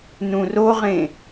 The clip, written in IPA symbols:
nũroʁẽ

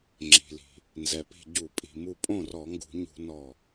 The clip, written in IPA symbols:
ŋ͡ǁi̤˩li̤˩ | nzɛ˩pi̤˧˩ ɟu˧˩˧pʼi̤˩mu˧˩ pʼõ˥˩rɔ˧˩˧ŋɡṳ˧˩˧ɲṳ˧˩˧ nɔ˧˩

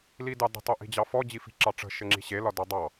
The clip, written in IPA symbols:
lidɑdə̤ tˤoʔi̤d͡ʑɑfɔ d͡ʑifi̤ǁɑʈ͡ʂə̤ ʃɘŋ͡ǁi̤ɕe lɒdɒdˤɑ

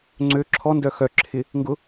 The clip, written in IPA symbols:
ŋ͡ǀø ǁʰɔndœ xœ ǁʰɪ | ŋɡʊ

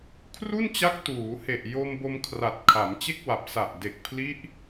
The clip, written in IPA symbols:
kʰru˥˩nt͡ɕa˦˥k̚ tuː˩˦ he˨˩ʔjo˧mbo˧m kʰra˨˩t̚kʰa˩˦mt͡ɕe˥˩k̚wa˨˩p̚ sa˨˩ʔde˨˩k̚pʰli˦˥ʔ

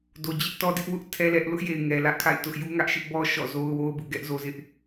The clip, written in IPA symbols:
do˨d͡ʑɪ˦ʔtɔ˦dɪ˦ʔ wʊ˦ʔ tʰɛ˦lɛ˦ʔ lʊ˦ʔje˨ɪ̯ ŋɛ˨ lä˦ʔkʰa̰˦˨ɪ̯ tʊ˦ʔ ju˦ŋä˦ʔʃɪ˦ʔ bɔ˦ ʃɔ̰˦˨zo˦ʊ̯wo˦ʊ̯bṵ˦˨ ɡɛ˦ʔ zo˦zɪ˦ʔ

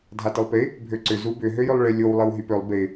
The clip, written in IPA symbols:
dʱatɪlˠpɪ | bʱøǀʏ zubʏ ɦøjʏlˠɭɪ lʲow lˠɪwɦypølˠ bɪ

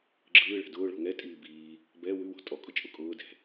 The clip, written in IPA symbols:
ɡ͡ǁɯːɭɛ̤ dʊːɭɔ̤ ŋɛ tʼiːbiː | bɛ wʉwɔ̤ tʼɔkʼʊt͡ʃʼʊ kʼʊː dɛ̤

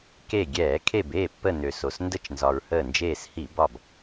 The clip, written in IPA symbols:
ke˧˩ɡʲɛː˧˩˧ kʰe˧˩beː˥˩ pːə˧˩ nø˩so˩sndə˥˩t͡ʃnzɒ˩ɹ həː˧˩nd͡ʒeː˧˩shi˧˩˧bɒ˧˩b

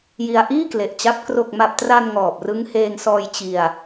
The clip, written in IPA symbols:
ji˧a̯ʔiː˥˩kle˨˩ʔt͡ɕa˦˥p̚ kro˨˩k̚ma˨˩p̚tra˧n ŋɔː˨˩p̚rɯ˦˥ŋ heː˧ŋsɔː˧j t͡ɕi˧a̯

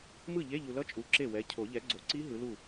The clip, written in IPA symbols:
mɯ˥˩ʎe˧˥˧ʎu˨lʌ˦˥ t͡ʃʼu˨˥ǁe˥˩wɛ˨˥ cʰo˨˩˦ʎɛ˨˥ɡ͡ǀo˨˩˦ ǀi˦˥ ɦɯ˨˥lu˥˩

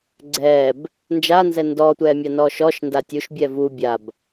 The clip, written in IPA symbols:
ɡ͡ǀɛːb | nd͡ʒanzɛ ndɔːtʷɛːmʲanɔː ʃɔʃnda tʲuʃbʲɛ vu bʲab

